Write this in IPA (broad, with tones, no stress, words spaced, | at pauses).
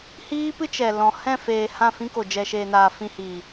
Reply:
hiː˦pɨ˦t͡ʃɛ˨ lɔ̃˨ hɛ̃˦˨feː˨ hã˦˨fĩ˦ko˨ d͡ʒɛ˨ʃeː˨naː˨ fĩ˧hiː˨